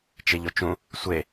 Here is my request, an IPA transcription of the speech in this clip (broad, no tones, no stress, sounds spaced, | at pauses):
t͡ʃ e ʎ o t͡ʃ ũ | sʷ e